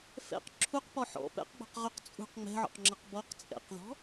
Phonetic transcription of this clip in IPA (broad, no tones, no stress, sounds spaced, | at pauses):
f ɛ̰ q ǁʰ u q p ɔ ħ ɔ̰ p ɛ̰ q ɡ͡b ɔ̤ q ʁ ɵ q t͡sʼ ṳ q ŋ͡m ɛ̤ ʕ ɔ̰ q ŋ͡ǁ ʌ q b ɔ q t͡sʼ ɛ̰ q ð ɔ̤